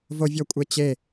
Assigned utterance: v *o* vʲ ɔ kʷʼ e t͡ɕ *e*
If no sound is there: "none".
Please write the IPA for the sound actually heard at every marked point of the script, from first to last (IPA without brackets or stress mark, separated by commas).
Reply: o, e